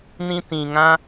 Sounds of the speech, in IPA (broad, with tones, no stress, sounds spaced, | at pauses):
n ĩ˦ t ĩ˨ ŋ ã˦